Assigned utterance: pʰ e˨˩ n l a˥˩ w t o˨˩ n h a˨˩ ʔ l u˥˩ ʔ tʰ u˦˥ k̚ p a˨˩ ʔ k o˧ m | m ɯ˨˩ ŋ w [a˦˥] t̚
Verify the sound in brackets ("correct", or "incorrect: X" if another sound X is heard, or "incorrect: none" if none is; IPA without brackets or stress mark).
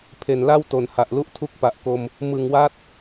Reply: correct